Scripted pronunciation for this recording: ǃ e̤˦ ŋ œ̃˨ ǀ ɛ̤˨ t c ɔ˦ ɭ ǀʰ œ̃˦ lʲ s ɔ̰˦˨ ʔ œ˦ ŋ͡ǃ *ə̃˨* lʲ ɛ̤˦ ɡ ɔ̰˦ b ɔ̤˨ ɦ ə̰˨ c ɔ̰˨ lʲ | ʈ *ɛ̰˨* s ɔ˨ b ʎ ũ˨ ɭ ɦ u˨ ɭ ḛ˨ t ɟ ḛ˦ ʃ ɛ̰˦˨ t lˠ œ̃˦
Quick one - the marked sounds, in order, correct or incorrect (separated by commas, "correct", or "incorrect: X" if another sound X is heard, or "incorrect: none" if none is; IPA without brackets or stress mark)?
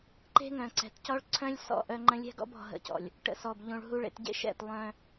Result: incorrect: ə̃˦, incorrect: ə̰˨